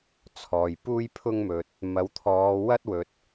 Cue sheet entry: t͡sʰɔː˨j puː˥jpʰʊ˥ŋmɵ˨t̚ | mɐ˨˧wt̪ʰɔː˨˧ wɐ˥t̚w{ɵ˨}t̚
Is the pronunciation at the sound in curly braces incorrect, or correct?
correct